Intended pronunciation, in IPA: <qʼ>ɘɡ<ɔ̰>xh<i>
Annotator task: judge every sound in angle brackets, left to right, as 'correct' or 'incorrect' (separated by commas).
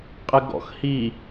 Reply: correct, correct, correct